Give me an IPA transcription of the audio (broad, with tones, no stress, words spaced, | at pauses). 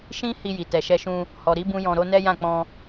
ʃĩ˦hi˧ji˨ tɛ˨ʃɛ˧ʃũ˧ | hɔ˨ɾi˨˦ bũ˦jɔ̃˧ɾo˦ nɛ˦jã˦˨k͡pɔ̃˧